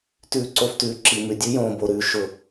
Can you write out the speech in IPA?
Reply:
t ʉː˨ ǀ o˨ f t ʉː˨ ǁ i˨ m ʉ˨ dʲ ʉ˦ j õː˨ b o˨ ɾ ʉː˨ ʃ ʊ˦

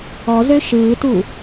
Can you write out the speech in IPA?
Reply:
ɔ z ø ʃ ɯː t u

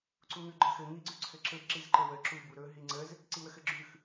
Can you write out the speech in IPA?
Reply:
ǀ u ŋ ʉ ɡ͡ǃ ə x ɘ ŋ i ɡ͡ǀ ʉ ǀʰ ɘ ǁ ɘ b ǁ i z ǃ ɘ w ə ǁ u b u ɾ ɵ ɦ i ŋ͡ǀ ə z | ǀ i w ə x ɘ ɡ͡ǁ ʉ x

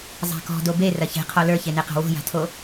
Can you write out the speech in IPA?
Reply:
zˤ a̤ k ɔ̤ d o b e r ɐ ç e̤ qʰ ɔ l ə˞ ç e n e q a̤ w o̤ j a̤ tʰ o

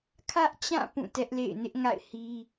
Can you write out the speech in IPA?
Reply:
kʰ ä˦ ʔ t͡ɕ ã˦˨ p ũ˦˨ t ɛ˦ ʔ l ḛ˦˨ ɪ̯ n ɪ˦ ʔ ŋ a̰˦˨ ɪ̯ h i˦

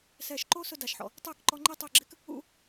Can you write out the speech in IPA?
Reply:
s ɛː˨ ʃ ǃ o˦ s ʊ˦ d a˨ ʃ ħ ɔ̰˨ | tˤ ɪː˦˨ k ǃ ɔ˧ ŋ͡ǃ e˦ tˤ ʊ˦˨ ɡ͡ǁ ɪ˦ k | ṵ˧

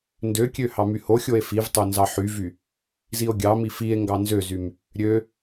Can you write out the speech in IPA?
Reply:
n d ø kʲ ø h ɑ m y h o xʲ o e̯ f i v tˤ o n z ɑ ħ y v y | z i o̯ ɡʲ ɑ m i f i e̯ ŋ ɡ ɑ n z ø z y m | ɾʲ ø

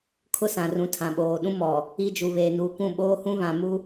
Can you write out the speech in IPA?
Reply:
kʰ ʊ˦ s ã˨ r ũ˨ tʰ ã˨ ɓ oː˨ ɗ ũ˦ m ɔ˨ | i˦ d͡ʒ u˨ β eː˨ n uː˨ kʷ ũ˦˨ ɓ oː˦ h ũ˦ β ã˨ m u˦

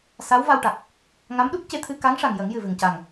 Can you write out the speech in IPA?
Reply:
s a˧˥ w v a˧ w ʈ a˨˩ k̚ | ŋ a˧˥ m ɗ u˦˥ k̚ c e˧ t̪ʰ ɨ˧ k a˧˥ ŋ ʂ a˨˩ ŋ j ə˨˩˦ ŋ j ɨ˨˩ v ɨ˨˩ ŋ c a˨˩ ŋ

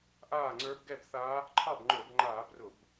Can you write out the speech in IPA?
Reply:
ʔ aː˥˩ ŋ͡ǀ ə˞˧˥ b ɡ ɛ˥˩ b θ a˧˥ | ǃʰ ɑ˥˩ b ŋ͡ǃ ə˞˧˩˧ b ŋ͡ǃ aː˧˩˧ b r ʊ˧˩˧ b

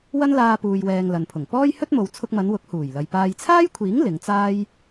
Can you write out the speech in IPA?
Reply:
w ɐ˥ n l aː˧ p uː˨ j w ɛː˨ ŋ l ɐ˨ n pʰ ʊ˨˩ ŋ p ɔː˥ j h ɵ˥ t̚ m o˨ w t͡sʰ ʊ˧ k̚ m ɐ˨˧ n w ʊ˨˥ k̚ h uː˨˩ j l ɐ˨ j p aː˨ j t͡sʰ aː˥ j kʷʰ iː˨˥ ŋ l ɪ˨˧ ŋ t͡s aː˥ j

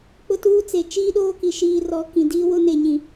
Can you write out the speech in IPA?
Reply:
k͡p ʊ˦ t uː˦ t͡s e˨ t͡ʃ iː˦ ɗ oː˦ k i˨ ʃ iː˨ r ɔ˨ k ĩ˨ d iː˦ w ʊ˦ n e˨ ɲ ĩ˨

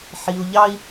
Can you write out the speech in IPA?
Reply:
ħ i˨ u̯ ʎ ɑ˦ i̯

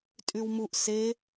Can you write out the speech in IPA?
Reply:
tʼ y w m u ʔ s e

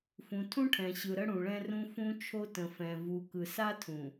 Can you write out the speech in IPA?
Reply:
f ũ˨ tʰ ũ˦ ʈʰ ɛ̃˨ ɕ ɯ˨ ɾ ə˦ ɽ ũ˨ ɭ ɛ̃˦ r ũ˦ f ũ˦ t͡ʃʰ o˦ t ə̃˨ f ɛ̃˨ v u˨ k ɯ˨ s a˦ tʰ ũ˨

